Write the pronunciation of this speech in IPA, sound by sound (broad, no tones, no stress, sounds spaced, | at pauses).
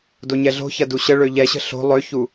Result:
d o ɲ ɛ ɮ o̤ ç ɐ d u ɕ ə ɭ ø ʎ ɛ ɕ ə̤ ɬ o̤ lˠ ø ç u